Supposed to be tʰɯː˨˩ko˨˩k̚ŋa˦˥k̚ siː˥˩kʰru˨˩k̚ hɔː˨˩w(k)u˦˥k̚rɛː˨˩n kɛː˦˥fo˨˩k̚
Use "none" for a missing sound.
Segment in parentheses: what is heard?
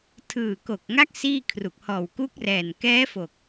k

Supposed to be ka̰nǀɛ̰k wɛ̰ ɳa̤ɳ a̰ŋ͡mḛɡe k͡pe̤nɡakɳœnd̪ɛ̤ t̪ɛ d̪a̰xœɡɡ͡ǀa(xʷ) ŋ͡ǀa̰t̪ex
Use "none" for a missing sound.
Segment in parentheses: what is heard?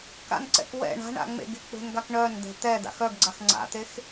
x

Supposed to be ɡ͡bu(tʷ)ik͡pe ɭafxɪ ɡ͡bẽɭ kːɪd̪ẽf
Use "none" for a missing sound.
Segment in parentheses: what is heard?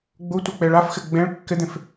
tʷ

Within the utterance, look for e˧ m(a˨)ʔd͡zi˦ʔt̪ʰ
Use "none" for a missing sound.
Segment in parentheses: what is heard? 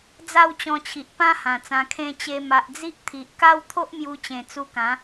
a˨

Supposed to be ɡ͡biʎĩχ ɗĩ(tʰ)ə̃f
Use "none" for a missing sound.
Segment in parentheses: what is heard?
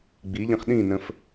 n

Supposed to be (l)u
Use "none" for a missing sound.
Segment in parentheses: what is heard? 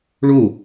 ɭ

